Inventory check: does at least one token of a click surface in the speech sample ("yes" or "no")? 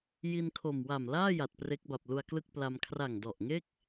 no